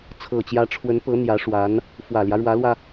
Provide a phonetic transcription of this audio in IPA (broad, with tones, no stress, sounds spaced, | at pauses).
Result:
t͡sʰ ɤ˨˩ t͡ɕ j ä˧˥ ʈ͡ʂʰ w ə˧˥ n p ɤ˧˥ n̪ j ä˧˥ ʂ w a˧˥ n | f w ä˨˩ l j ä˦ ɻ w ä˧˥ l w ä˧